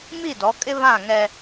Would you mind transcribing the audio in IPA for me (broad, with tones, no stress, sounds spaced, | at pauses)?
m i˦˨ d ɔ˨˦ kʼ ɪ˦ β ã˦˨ ŋ ɛ˦